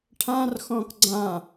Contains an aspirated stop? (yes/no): yes